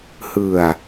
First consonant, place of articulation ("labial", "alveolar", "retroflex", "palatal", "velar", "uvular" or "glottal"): glottal